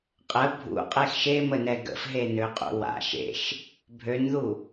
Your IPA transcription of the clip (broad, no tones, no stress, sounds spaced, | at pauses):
qʼ ə bʱ ṵ qʼ e x ʃ e m ə n ɛ ɡ ə̰ f ɦ e n ø qʼ ṵ w a̰ ʃ ḛ ʃ | bʱ ø n ð u